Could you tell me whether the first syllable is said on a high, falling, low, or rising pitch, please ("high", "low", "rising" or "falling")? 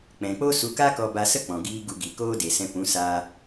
low